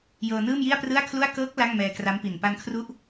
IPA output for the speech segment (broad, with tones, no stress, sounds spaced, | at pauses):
j ɤː˧ n ɯː˥˩ m j i˥˩ a̯ p r ɯ˥˩ a̯ kʰ l u˥˩ a̯ k ɤː˦˥ k̚ l a˥˩ ŋ m ɛː˧ k r a˦˥ m p i˨˩ n p a˧ n kʰ r u˦˥ ʔ